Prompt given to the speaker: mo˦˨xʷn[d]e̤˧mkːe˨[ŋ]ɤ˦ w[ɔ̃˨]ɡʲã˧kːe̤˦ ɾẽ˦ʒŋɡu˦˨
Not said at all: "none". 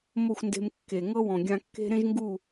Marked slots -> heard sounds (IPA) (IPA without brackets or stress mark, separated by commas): d, ŋ, ɔ̃˨